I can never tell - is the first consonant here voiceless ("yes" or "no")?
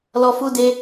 no